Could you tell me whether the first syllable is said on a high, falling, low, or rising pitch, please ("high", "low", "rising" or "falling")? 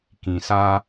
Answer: low